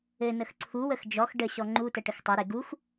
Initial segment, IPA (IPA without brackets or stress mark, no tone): ɘ